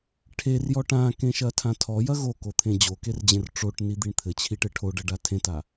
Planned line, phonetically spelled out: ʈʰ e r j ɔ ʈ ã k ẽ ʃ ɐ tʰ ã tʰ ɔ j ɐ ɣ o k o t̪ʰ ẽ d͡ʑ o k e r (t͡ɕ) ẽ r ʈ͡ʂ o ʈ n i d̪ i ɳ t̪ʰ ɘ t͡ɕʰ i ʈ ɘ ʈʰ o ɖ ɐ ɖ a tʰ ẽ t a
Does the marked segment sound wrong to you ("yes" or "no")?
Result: yes